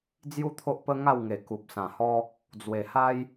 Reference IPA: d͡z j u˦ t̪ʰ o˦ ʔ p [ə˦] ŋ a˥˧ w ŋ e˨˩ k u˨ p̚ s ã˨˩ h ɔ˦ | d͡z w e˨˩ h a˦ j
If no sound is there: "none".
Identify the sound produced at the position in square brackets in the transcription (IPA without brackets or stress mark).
ə˦